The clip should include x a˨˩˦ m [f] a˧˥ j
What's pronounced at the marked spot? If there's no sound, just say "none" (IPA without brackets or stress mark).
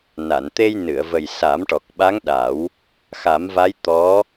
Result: v